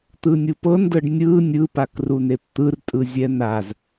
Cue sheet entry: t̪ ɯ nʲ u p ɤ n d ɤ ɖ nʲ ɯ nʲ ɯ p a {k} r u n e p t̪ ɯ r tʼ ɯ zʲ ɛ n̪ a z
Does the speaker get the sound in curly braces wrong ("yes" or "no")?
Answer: no